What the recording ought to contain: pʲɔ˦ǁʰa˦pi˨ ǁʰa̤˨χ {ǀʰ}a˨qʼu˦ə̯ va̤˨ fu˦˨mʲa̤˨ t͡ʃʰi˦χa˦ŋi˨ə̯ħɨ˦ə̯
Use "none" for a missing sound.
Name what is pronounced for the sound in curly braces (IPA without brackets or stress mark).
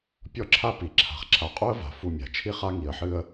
ǁʰ